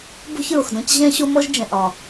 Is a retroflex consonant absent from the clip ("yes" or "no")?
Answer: yes